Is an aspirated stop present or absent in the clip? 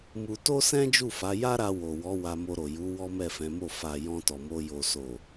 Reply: absent